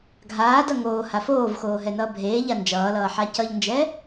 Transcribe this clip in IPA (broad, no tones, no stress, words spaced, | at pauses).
ɡʱaːdʌ ŋoːha foːvxoːɦɛnʌː bʱeːʎa nd͡ʒʌːlʌːħa cʌʎnd͡ʒɛ